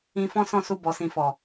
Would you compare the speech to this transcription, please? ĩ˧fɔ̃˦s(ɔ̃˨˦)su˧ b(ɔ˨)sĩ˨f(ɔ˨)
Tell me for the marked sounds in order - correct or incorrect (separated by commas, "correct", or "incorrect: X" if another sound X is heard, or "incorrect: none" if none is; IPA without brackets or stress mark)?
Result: incorrect: ɔ̃˦˨, correct, correct